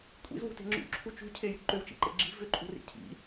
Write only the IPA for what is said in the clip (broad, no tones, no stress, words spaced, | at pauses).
kʷʼḭzwṳte̤ ŋ͡ǁṵǁʰu t͡ʃṳcʰejṳ ǃʏwt͡ʃḭǃḛ ɡ͡ǁi̤ vʏǃʼṳrḭ cʰḭ